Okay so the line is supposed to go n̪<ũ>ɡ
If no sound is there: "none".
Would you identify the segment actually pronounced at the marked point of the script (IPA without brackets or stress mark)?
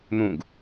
ũ